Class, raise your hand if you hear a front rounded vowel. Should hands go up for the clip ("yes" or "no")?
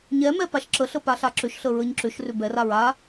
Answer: yes